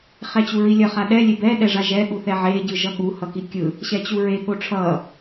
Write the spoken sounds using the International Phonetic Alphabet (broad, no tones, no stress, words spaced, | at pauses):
χɛt͡ɕuɹilʲʌ χaɗɛ lʲebɛ ɗɛʐaʒɛ ɠuθɛʕe ɟɯʒʌɠu hʌkikʲɯ | ɕɛt͡ɕuɹe ɠoʈ͡ʂʰʌ